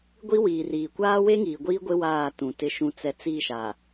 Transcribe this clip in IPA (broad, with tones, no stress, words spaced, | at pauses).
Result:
ɡʷi˦wiː˨riː˨ kʷaː˦we˦ ŋiː˨ɡʷiː˦ɡʷɪ˦ waː˦˨tũ˨ tɪ˨ʃũ˨t͡sɛ˨ t͡si˦˨ʃa˨